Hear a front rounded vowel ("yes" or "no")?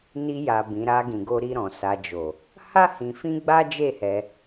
no